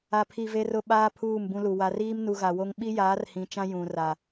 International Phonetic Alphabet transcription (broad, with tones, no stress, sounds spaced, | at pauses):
a˨ pʰ i˨ v e˦ r ʊ˦ ɓ aː˦ pʰ uː˦˨ m b ũ˦ l u˨ w a˨ r iː˦ m n u˨ ɣ a˨ w o˦ ŋ ɓ i˦ j aː˨˦ r h ĩ˨ t͡ʃ ã˦ j ũ˨ r a˨